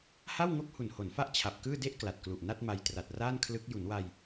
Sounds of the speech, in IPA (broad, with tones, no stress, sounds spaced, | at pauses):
h a˥˩ w ŋ o˥˩ k̚ h u˨˩ n h o˩˦ n f a˦˥ ʔ t͡ɕʰ a˨˩ p̚ k ɯː˥˩ d e˥˩ ʔ k l a˨˩ t̚ k l u˨˩ ʔ n a˥˩ t̚ m a˧ j t r a˨˩ t̚ r aː˥˩ n kʰ l ɯ˦˥ k̚ j u˩˦ n w a˧ j